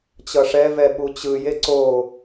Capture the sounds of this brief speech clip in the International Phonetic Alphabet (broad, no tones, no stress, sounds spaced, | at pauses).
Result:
t͡ɕ ʌ ʂ ɛ v ɛ ɓ u t͡ɕ ɯ j e ǀ o